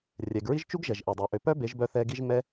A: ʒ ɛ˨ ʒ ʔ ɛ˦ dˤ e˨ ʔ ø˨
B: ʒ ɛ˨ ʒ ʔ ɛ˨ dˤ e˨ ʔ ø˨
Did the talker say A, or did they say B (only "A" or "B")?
B